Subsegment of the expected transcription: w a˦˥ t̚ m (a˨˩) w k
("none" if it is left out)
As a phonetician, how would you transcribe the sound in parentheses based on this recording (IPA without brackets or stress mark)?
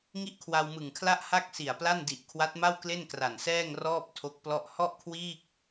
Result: a˥˩